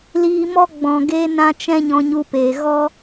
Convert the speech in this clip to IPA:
l iː˧ m ɔ˦ ɡ͡b ɔ̃˨ ɡ e˧ n ã˧ t͡ʃ ɛ̃˦ ɲ ɔ̃˧ ɲ u˧ p eː˨ ɣ ɔ˦

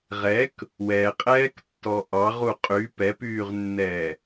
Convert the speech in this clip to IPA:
ʁ ɛ k | w ɛ qʼ ɛː k tː ɔ ʔ ɑ ʁ u qʼ y p ɛ p yː ʁ nː ɛː

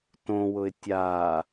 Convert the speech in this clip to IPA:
t õ w ʊ ɪ̯ tʲ a

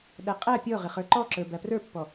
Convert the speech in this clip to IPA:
ɗ æ qʼ æ pʲ ɔ ʁ ɪ χ ə˞ ǃ ɔ ǁ ə˞ b æ p r ə˞ pː ɔ

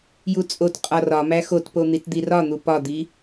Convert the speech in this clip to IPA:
j u t͡sʼ o t qʼ ɒ r ɒ m æ x o t p o n̪ i t d̪ i r ɒ n̪ u p ɒ d̪ i

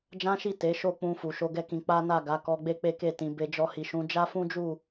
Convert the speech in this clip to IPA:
d͡ʒ ã˦ ʃ i˦˨ t e˨˦ ʃ o˦˨ k͡p ũ˧ f u˨ ʃ o˧ ɡ ɛ˦ k ĩ˧ k͡p a˦ n a˦˨ ɡ a˨˦ k ɔ˧ ɡ͡b e˦ k͡p e˦ k e˦˨ t ĩ˨ b e˧ d͡ʒ ɔ˧ h i˨ ʃ ũ˨˦ d͡ʒ a˦ f ũ˦ d͡ʒ u˦˨

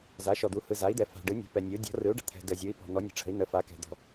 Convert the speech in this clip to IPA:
z a˩˥ ʃ ɔ˨ d̪ u˩˥ h ɯ˨ z a˩˥ i̯ d̪ ɛ˨ f a̤˨ ɖ ɯ˩˥ nʲ ɔ̤˩˥ p ɛ˨ nʲ u˩˥ dʲ ɔ̤˩˥ r ɯ˩˥ u̯ ɖ ə̤˨ t̪ʰ ɛ̤˨ d ə˨ zʲ u˩˥ i̯ p ɔ̤˨ n̪ ɔ˩˥ nʲ ə̤˨ ʈ͡ʂʰ ə̤˩˥ i̯ n̪ ə˩˥ f a˩˥ k ɛ̤˨ d̪ ɔ̤˨

